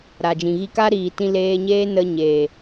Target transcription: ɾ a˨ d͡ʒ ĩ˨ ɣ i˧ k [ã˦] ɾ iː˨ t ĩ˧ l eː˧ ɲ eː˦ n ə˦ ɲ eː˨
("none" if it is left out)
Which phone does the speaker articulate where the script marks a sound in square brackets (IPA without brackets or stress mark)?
a˦